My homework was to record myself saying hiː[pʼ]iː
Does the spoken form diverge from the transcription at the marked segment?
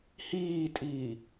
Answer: yes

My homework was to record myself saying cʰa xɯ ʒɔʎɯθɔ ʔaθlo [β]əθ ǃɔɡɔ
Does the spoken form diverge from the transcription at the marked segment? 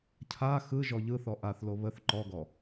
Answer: no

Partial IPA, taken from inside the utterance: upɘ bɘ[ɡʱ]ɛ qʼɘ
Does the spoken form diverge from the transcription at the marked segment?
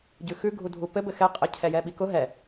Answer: yes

